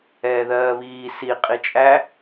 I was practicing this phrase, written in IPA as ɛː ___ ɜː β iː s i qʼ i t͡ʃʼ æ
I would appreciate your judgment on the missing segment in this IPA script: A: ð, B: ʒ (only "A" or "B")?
A